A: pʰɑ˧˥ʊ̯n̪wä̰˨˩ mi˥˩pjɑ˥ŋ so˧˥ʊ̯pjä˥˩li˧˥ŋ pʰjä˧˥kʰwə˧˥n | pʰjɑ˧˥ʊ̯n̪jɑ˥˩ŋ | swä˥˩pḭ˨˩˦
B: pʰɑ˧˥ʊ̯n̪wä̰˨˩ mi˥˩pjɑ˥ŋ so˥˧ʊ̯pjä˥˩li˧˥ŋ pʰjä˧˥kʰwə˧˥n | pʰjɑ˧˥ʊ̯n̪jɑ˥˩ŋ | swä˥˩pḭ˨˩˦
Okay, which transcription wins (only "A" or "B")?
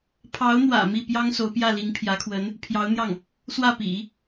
A